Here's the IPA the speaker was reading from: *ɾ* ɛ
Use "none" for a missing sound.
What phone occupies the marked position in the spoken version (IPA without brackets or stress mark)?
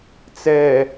t͡s